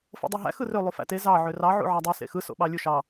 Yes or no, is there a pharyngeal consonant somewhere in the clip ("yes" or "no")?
yes